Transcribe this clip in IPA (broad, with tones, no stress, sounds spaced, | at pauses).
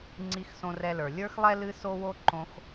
ŋ͡ǀ i˧ x s õ˧ r ɛ˧ l ə˞˩ lʲ ə˞˥ x lˠ ɛ˥ l ɨ˥ s o˥ w o˥ ǃ õ˧ x